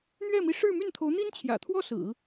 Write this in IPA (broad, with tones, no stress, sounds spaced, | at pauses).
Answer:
n̪ ɥ ɛ˥˩ m i˧˥ ʂ ɻ̩˥˧ m y˥˩ n t̪ʰ o˧˥ ʊ̯ n̪ i˥ n t͡ɕʰ j ä̰˨˩ t̪ʰ w ɔ˥˩ s ɹ̩˨˩˦